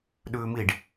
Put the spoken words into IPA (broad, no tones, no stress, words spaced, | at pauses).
ɗʉːmiɖ